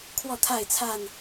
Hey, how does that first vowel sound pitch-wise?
falling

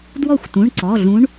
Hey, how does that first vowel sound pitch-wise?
falling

